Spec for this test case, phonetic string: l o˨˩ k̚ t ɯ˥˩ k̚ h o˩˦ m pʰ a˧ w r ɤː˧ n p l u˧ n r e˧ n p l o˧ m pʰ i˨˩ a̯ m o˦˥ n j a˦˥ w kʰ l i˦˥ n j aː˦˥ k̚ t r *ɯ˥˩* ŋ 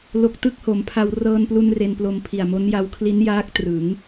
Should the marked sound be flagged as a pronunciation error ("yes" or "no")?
yes